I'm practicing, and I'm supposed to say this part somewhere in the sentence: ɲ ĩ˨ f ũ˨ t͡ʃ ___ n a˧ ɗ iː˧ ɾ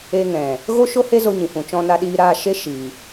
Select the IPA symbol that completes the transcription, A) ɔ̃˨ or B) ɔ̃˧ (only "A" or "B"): B